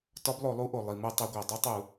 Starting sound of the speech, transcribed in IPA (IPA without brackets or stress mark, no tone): t